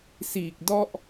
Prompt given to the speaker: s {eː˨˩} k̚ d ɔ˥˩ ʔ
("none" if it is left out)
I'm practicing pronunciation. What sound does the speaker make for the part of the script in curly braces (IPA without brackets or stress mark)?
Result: iː˨˩